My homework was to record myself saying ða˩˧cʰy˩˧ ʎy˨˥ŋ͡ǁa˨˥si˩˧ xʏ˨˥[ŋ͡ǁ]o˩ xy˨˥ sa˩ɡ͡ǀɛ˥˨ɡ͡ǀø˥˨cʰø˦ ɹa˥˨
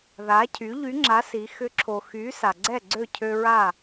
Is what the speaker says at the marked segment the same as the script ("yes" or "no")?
no